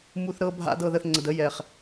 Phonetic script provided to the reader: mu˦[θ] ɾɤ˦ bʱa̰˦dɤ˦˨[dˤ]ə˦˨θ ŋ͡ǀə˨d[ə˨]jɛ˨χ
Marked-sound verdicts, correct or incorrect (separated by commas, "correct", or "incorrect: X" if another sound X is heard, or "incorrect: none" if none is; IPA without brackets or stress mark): correct, incorrect: ð, incorrect: ə˦